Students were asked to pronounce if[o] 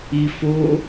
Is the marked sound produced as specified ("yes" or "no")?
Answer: yes